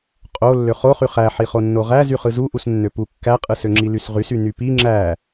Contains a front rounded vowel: yes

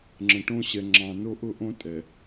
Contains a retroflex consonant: yes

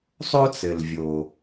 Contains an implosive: no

